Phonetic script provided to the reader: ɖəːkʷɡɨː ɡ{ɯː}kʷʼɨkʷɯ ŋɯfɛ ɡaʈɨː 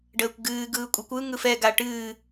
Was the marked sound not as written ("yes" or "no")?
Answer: no